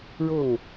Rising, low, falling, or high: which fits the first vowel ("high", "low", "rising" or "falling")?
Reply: falling